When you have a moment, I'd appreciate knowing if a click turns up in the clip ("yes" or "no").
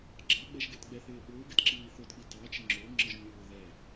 yes